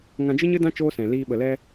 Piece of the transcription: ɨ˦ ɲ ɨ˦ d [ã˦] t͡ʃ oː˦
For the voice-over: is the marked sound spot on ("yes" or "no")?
yes